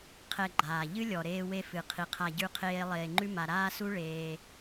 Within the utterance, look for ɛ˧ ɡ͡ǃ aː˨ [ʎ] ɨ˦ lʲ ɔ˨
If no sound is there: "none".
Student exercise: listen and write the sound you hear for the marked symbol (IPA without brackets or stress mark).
ʎ